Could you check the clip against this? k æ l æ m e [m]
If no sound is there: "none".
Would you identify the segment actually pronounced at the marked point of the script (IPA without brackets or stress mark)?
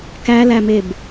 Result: b